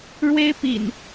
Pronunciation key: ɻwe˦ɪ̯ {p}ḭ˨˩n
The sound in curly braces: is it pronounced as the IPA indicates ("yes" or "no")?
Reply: yes